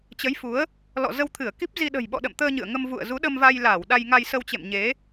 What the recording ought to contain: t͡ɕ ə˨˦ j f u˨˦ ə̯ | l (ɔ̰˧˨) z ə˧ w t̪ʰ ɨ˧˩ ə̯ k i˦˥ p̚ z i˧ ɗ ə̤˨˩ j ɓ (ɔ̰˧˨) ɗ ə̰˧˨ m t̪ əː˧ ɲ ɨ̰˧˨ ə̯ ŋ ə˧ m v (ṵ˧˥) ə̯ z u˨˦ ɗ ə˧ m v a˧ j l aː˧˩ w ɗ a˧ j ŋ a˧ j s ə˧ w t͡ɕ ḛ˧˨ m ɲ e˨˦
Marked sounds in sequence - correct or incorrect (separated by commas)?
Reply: correct, correct, incorrect